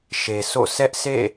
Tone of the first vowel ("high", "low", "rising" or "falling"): low